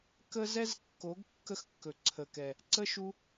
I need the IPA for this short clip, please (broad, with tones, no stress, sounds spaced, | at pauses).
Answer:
k ə˦ z ɛ˦ z kː o˨˦ ɡ kː ə˦ x kː ɵ˨ ǀʰ ə˨ k ɛ˨ | ǀ ə˦ ʃ u˧